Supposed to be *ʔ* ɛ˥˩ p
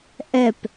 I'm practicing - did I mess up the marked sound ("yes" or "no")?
no